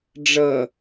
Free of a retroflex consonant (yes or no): no